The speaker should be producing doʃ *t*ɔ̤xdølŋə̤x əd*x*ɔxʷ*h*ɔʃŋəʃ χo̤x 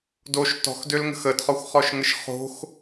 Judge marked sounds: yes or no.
yes, no, no

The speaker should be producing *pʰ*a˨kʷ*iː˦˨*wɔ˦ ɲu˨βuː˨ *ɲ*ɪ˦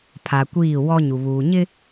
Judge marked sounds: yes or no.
yes, yes, yes

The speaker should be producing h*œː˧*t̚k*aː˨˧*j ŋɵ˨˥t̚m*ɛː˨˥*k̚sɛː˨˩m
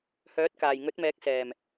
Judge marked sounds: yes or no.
no, no, yes

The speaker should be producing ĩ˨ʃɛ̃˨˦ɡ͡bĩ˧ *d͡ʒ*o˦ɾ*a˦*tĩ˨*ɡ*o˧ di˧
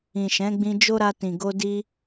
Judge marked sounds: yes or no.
yes, no, yes

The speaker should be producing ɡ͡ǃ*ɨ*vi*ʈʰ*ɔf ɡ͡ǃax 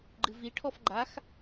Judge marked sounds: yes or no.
yes, yes

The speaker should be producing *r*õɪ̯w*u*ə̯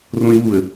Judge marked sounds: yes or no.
yes, yes

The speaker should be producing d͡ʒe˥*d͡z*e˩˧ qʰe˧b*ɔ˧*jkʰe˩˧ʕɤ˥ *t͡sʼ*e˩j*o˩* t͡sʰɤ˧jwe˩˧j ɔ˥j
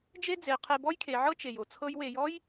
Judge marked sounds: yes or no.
yes, no, no, yes

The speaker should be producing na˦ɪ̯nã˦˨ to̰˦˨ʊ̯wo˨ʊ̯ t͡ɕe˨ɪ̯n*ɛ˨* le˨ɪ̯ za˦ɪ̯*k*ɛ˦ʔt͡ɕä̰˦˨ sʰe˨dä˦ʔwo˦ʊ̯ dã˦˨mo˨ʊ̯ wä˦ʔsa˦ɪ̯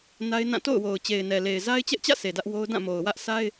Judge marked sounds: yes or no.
yes, no

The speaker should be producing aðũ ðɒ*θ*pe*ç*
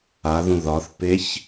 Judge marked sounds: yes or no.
yes, yes

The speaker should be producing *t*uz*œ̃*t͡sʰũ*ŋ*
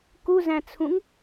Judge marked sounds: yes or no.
no, no, yes

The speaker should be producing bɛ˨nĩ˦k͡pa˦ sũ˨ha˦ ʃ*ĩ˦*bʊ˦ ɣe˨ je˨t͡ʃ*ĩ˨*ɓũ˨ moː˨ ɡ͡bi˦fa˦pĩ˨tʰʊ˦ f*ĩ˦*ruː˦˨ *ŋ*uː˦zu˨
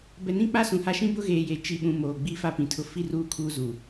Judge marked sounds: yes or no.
yes, no, no, no

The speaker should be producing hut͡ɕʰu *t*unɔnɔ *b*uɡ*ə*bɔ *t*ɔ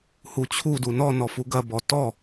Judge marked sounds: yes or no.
no, no, no, yes

